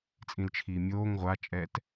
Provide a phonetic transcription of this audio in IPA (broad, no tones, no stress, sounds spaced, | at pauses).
t͡sʼ ĩ l t͡ʃʰ iː mʲ oː ŋ ʁʷ a t͡ʃʼ ɛː t